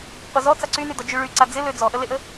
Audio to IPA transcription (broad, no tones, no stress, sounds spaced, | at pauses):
qʷ ə z ɔ t͡s a ǀ y n y d ɔ d͡ʒ y ɭ y ǀ a d͡z ɪ l ø d͡z ɔ ʔ ə l e ʔ ə